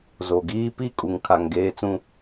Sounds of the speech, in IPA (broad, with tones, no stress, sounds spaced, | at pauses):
z o˨ ɡ iː˦ p i˦˨ kʼ u˨ ŋ kʰ a˨ ŋ ɡ eː˨ t͡s ũ˨